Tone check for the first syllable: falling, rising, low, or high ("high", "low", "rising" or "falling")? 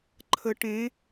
rising